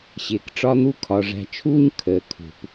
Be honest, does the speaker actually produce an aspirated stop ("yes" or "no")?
yes